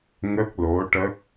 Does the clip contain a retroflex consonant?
yes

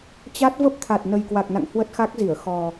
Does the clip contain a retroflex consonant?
no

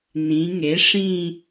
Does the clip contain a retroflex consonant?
yes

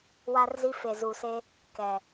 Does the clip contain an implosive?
no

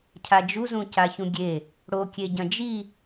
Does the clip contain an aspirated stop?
yes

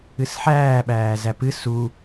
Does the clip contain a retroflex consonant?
no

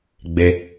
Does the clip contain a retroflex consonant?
no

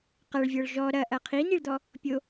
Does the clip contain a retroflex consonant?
yes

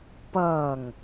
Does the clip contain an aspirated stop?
no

